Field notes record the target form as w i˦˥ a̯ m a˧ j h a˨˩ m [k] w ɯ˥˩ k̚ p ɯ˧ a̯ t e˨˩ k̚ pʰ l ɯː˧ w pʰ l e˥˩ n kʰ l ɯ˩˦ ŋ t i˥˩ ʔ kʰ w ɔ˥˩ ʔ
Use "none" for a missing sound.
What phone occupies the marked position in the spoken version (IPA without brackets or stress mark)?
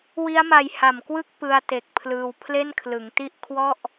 k